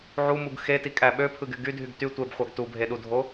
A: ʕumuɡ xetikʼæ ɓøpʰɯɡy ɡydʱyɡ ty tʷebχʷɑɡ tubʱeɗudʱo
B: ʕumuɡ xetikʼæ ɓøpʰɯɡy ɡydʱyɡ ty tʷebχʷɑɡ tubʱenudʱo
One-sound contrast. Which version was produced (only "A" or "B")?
A